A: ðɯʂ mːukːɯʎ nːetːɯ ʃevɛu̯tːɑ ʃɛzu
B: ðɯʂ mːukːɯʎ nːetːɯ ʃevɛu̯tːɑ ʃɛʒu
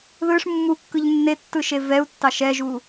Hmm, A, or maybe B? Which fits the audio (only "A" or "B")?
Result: B